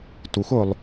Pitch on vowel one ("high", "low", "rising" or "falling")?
rising